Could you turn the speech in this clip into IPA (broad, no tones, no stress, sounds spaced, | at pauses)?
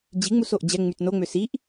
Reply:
d͡ʑ i ŋ͡m u s o ʔ d͡ʑ ɛ ŋ͡m y t n o ŋ͡m ø s i ʔ